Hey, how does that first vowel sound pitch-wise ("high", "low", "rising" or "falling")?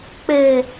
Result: low